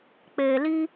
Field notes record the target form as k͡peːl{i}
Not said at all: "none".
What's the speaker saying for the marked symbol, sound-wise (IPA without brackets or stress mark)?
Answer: i